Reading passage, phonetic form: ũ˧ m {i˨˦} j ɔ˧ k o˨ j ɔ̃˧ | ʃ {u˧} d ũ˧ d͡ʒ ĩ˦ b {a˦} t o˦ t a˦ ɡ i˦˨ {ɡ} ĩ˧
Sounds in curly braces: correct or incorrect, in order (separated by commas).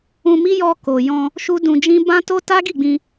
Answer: incorrect, incorrect, incorrect, incorrect